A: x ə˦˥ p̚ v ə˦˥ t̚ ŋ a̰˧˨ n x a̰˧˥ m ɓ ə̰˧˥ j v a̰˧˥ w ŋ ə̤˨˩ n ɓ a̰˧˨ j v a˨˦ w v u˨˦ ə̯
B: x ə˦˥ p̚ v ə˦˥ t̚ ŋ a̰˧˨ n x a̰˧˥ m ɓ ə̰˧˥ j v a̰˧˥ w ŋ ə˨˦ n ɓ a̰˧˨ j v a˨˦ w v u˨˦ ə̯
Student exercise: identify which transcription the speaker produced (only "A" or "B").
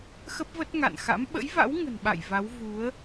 A